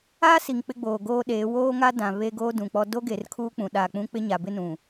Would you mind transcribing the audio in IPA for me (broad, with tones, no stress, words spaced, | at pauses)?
aː˦si˨ŋ k͡pɪ˦ɡ͡boː˨ɡoː˦ɗeː˨˦ woː˦ŋa˦dã˨ βe˦ɡoː˦dũ˨k͡pɔ˦ do˦ɡe˨r kʰuː˦k͡pũ˨ ɗa˨k͡pũ˦ k͡pɪ˦ɲa˨bɪ˦nũ˨